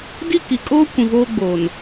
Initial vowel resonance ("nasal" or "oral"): oral